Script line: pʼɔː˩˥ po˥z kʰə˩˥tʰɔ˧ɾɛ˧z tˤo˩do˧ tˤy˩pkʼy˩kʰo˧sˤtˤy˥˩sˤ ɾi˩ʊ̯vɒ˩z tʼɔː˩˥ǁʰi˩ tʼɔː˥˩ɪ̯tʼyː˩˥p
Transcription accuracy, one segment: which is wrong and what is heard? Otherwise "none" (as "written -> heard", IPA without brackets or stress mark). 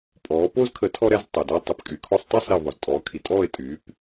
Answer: ǁʰ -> kʰ